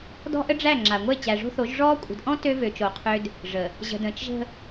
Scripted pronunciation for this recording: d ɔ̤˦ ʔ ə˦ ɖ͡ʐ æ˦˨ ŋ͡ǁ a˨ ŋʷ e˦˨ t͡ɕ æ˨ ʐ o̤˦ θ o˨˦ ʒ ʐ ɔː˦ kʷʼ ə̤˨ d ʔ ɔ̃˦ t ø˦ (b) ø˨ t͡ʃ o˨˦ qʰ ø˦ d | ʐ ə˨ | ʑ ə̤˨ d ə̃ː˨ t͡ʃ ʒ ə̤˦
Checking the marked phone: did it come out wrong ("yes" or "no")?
yes